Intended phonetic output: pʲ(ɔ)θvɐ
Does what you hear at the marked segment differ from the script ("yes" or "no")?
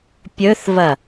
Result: yes